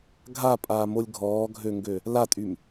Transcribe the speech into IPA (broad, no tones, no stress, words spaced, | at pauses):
ɡʱapʼaːmolʲ ɡʱɔːɡʱøŋɡø | latʼym